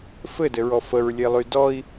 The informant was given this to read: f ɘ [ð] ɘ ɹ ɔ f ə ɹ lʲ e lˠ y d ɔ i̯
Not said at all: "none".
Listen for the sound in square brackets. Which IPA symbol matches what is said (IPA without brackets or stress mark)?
d